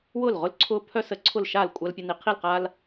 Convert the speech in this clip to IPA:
w ʊː˥˩ l ʁ ʊ˦ l ǀʰ ʊː˦ pʰ œ˦ s ə˨˥ ǀʰ ʊ˥˩ l ʃ aː˥˩ l kʷʼ a˦ l pʲ ə˦ n i˨˥ qʰ i˥˩ l q aː˦ l

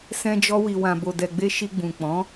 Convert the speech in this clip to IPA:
s ɛ̃˧ d͡ʒ ɔ˧ w i˨ w ã˨ b o˨ d ɛ˨ ɡ͡b e˧ ʃ i˧ ɡ͡b ũ˨ k͡p ɔ̃˨˦

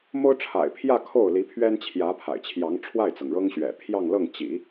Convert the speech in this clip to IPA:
m o˥ ʊ̯ ʈ͡ʂʰ a̰˨˩ ɪ̯ pʰ j ä˥˧ kʰ o˥˩ ʊ̯ l i˧˥ pʰ ɥ ɛ˥ n t͡ɕʰ j ä˧˥ pʰ a̰˨˩ ɪ̯ t͡ɕʰ j ɑ˧˥ ŋ ʈ͡ʂʰ w a˥˩ ɪ̯ t͡s ɤ˩ ŋ ɻ ɤ˥ ŋ ɕ ɥ ɛ̰˨˩ pʰ j ɑ˥˧ ŋ l ɤ˥˩ ŋ t͡ɕ ḭ˨˩˦

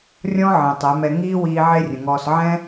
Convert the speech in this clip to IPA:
rʲ ɔ̃˦ ʕ ẽ˨ tˤ ɛ˨˦ m ɛ˧ ŋ iː˦ w iː˧ ʕ e˦ rʲ ə̃˨ ŋ ɔː˧ s ʕ ɛ̃˦

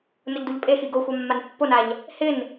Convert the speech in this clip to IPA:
n ʊ ʎ d u ʎ pʼ e x i ɡ o xʷ a mː a n pː o n a ʎ | h ɪ n

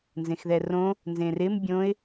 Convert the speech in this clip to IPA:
n z ẽ x ð ɛ r õ | n z ẽ r ɪ m bʲ õ ɪ̯

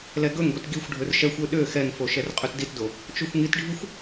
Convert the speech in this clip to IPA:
l ɛ ɡ ɵ ŋ ɡʷ i t ɡ i xʷ ɖʱ ɵ r ʃ ɛ xʷ ø ɗ ø x ɛ ŋ f o ʃ ɛ r qʼ ø t d i t d o | t͡ʃ o xʷ ŋ i t ɖʱ i xʷ

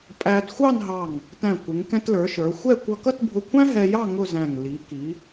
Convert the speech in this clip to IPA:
pʼ æ˧ d xʷ ɑ˥˧ n ɦ ɑ˧˩ ŋ | t æ̃˧˩ kʷ ɪ˩˧ ŋ k ɛ̃˧ t l ə˞˩˧ ʃ ə˞˩˧ xʷ ɛ˥˧ kʷ ʌ˧ k ʌ˥˧ t bʱ ʊ˧ kʷʰ æ̃˥ ɦ ɛ˧ j ɑ˥˧ ŋ ʊ˥˧ z æ̃˧˩ ŋ l i˩˧ k i˩˧

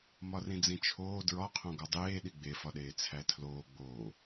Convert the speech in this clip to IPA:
m ɒ r ĩ d͡z ĩ t͡ʃʰ oː d ɹ ɒ qʰ õ ɡ ɒ dˤ eː ɗ i ɡ͡b e f ɒ ɗ eː t͡sʰ æ tʰ l oː ɡ͡b oː

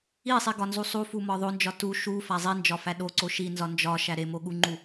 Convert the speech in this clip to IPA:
i sˤ i ɡ ɒ n z u sˤ u f u m ɒ ðˤ o n d͡ʒ ɒ t u ʃ u f æ zˤ i n d͡ʒ ɒ f æ ɗ o ǀ o ʃ i n z ɒ n d͡ʒ ɒ ʃ æ ɾ e m o ɠ u ŋ͡ǃ u

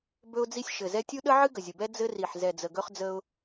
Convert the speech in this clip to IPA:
b ɵ˦ ʊ̯ d͡z i˦ sʲ ʃ ɘ˨˩ z ɛ˦ tʲ u˦ ɗ ə˦ ʕ ɨ˦ ɡ ə˨˩ zʲ ə˨˩ b ɛ˦ d͡z ɘ˦ r i˨˩ ħ z ɛ˨˩ d͡z ə˨˩ ɡ ɵ˦ χ d͡z ə˦ ʊ̯

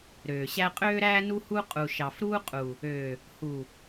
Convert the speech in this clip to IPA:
ɾ øː˨ ɕ æ˦ qʼ øː˦ ɾ æː˦ n u˦ h u˦ qʼ u˨ ʃ ɑ˨ f ɾ uː˦ qʼ u˨ | øː˨ | h u˨

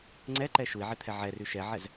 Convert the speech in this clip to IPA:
ŋ͡ǀ ɛ ǃ ɛ ʃ u i̯ ʕ e t̪ʰ ɛ ʕ ɛ r y ʃ ɛ ʕ ɛ z

